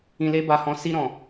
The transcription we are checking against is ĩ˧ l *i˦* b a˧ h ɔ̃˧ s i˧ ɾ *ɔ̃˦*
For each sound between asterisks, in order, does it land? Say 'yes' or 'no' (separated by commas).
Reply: no, no